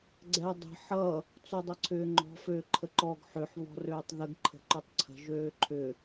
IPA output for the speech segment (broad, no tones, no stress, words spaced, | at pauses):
ɡ͡ǀɛdˤə̤ ħʌ | t͡sodˤʌǀʰʏːŋ͡ǃɔ̤ føːǃʰəǃɔɡ ħʏħ βɔ̤røːtˤðəɡ ǃʰə̤ǃʏtˤǀʰə̤ ʒøːǃʰʏ